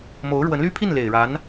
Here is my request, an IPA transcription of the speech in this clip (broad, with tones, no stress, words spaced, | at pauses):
mo˧˥ʊ̯ɻwə˧˥n ly˥pʰi˥˩n le˨˩ɪ̯ɻa˧˥n